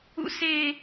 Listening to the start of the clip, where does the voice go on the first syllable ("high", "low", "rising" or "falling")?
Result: high